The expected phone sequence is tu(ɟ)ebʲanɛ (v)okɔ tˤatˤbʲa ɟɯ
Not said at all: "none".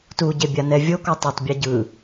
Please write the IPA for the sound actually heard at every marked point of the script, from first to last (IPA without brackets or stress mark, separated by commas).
ɟ, vʲ